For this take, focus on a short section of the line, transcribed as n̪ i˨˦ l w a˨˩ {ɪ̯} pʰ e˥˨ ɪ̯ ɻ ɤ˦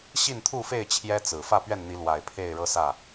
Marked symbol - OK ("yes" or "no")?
yes